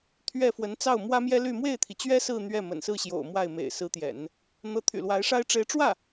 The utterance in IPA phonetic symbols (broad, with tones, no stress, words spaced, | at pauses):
t̪ʰɥɛ˥˩ fwə˧˥nt͡sɑ˥˩ʊ̯ mwä˥mjɛ˥ly˥˧ mwe˥˩ɪ̯t̪ʰi˩t͡ɕɥɛ˥ sɹ̩˥˧ n̪ɥɛ˥˩ mə̰˨˩nsɹ̩˥˩ɕjo̰˨˩ʊ̯ mwa˥˩ɪ̯ mḛ˨˩ɪ̯sɹ̩˧˥t̪jɛ̰˨˩˦n | n̪ɤ˧˥t̪ʰy̰˨˩lwa˧˥ɪ̯ʂa˥ɪ̯ ʈ͡ʂe˧˥ɪ̯ʈ͡ʂwä˥˩